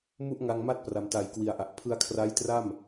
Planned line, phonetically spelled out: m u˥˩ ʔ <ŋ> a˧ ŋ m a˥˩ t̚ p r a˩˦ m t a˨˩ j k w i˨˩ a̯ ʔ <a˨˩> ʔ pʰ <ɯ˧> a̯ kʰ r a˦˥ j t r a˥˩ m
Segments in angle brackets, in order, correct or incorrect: correct, correct, correct

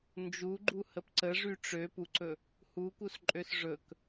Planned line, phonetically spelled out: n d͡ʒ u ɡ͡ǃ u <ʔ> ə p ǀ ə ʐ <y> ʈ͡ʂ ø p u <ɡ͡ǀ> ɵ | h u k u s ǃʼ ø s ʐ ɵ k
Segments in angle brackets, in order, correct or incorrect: incorrect, correct, incorrect

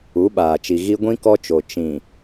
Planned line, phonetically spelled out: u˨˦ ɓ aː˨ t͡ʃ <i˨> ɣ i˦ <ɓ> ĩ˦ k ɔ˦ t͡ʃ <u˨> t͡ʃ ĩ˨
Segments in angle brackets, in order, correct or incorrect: correct, incorrect, incorrect

